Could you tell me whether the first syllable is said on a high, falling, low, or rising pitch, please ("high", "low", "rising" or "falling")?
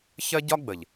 high